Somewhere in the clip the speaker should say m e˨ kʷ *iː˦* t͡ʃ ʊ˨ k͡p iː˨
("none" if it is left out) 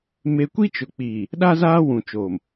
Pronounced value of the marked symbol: i˦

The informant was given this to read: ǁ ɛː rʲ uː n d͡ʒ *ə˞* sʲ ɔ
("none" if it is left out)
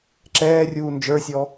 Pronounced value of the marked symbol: ə˞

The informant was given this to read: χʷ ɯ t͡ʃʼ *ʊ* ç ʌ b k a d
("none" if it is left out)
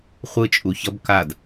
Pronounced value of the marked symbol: u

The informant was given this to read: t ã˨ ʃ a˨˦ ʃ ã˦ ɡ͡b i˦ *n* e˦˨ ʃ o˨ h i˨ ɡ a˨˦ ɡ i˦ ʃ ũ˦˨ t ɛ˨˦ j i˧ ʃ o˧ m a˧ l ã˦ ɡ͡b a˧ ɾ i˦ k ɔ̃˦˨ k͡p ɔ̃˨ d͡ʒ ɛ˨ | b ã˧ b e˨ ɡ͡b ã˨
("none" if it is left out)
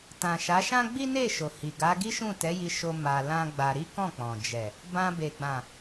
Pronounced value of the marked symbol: n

